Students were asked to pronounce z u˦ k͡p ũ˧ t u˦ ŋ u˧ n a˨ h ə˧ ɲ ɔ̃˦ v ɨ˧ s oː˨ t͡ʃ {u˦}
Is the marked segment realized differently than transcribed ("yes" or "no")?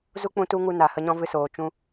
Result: yes